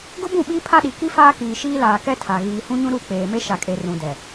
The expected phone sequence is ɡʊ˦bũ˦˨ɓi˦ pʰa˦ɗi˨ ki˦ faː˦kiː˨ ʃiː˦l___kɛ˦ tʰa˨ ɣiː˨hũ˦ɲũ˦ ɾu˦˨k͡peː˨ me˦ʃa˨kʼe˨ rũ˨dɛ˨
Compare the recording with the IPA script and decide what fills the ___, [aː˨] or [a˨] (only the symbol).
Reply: aː˨